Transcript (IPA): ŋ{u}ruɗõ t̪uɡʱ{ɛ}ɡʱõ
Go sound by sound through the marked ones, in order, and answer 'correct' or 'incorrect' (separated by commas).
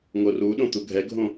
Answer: incorrect, correct